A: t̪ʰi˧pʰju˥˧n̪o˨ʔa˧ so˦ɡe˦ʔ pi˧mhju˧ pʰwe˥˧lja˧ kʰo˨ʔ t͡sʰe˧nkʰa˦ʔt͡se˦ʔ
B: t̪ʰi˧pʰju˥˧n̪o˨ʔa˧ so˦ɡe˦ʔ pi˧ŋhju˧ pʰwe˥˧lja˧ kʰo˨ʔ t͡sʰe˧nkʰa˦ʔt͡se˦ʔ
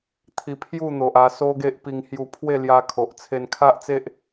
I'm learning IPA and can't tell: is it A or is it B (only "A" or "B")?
B